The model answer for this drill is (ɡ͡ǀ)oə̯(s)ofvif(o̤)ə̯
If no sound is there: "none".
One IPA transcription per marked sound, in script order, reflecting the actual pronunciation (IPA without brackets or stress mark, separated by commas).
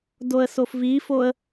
d, s, o